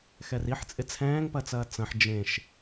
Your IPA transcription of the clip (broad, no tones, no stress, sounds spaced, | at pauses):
x ɛ r i ħ t͡sʼ ɪ t͡sʰ ɛ̃ː ŋ p ɐ t͡s ɐː t͡s ɐ̃ ħ d͡ʒ ẽ ʃ